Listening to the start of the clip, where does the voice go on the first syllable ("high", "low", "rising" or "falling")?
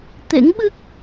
rising